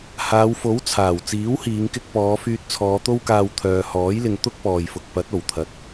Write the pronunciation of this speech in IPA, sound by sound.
haː˨˧wfo˨˥w t͡sʰaː˨˩w t͡siː˨˥whiː˨˧ŋkɪ˧k̚pɔː˨˧ fyː˧t̚t͡sʰɔː˨˧t̪o˥wkaː˧w t̪ʰœː˨hɔː˨˥jlɪ˨ŋ t̪ʊ˥k̚pɔː˨jfʊ˨k̚ pɐ˨˥t̚o˨˩wt̪ʰɐ˨˥t̚

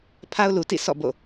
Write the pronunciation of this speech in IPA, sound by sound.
pʰa˦ʊ̯lu˨tḭ˦˨sɔ̰˦˨ bo̰˦˨

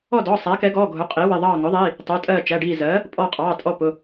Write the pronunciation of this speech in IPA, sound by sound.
ɔ˦˨dɔː˩˧˩ sˤæ˩˥kɛ˩˥ɡɔː˩˧˩ ɡʱʊ˩˥ qʼiː˩˥wɪ˩˧˩ ðˤɑː˦˨ŋʊ˩˥ðˤiː˩˧˩ | tˤʊː˩˧˩tʼɜː˦˨t͡ʃæ˩˧˩ ɖiː˦˨zɜː˩˥ | pʼɔ˦˨qʼɑː˩˧˩tʼɔ˦˨ pʊ˩˧˩

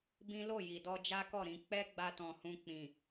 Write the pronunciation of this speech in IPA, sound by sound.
bĩ˦ lo˦˨ji˨dɔ˧ d͡ʒa˦kɔ˦˨ɾĩ˧ k͡pɛ˦ ɡ͡ba˦tɔ̃˧hũ˧ k͡pĩ˨

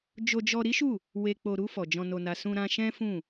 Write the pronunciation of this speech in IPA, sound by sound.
d͡ʒo˧d͡ʒɔ˧ɾi˦ʃu˦˨ | we˨k͡po˨ɾu˧ fɔ˨d͡ʒɔ̃˧no˧na˧ sũ˧ɾã˧ʃɛ̃˦ fũ˦˨

